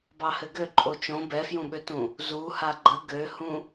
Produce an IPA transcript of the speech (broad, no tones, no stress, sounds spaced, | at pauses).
b ɑ h ɘ ɡ ø ǃʼ o t͡ʃ õ b ɛ f j ũ ɓ ø t ũ | z u h a ɡ͡ǃ ə ɡ ø h ũ